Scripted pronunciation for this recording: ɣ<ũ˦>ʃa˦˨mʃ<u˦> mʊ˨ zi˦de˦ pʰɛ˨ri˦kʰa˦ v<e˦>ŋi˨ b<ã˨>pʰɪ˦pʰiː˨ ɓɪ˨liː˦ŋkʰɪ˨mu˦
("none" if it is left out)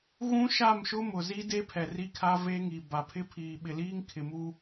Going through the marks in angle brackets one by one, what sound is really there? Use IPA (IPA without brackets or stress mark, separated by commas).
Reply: ũ˦, ʊ˦, e˦, a˨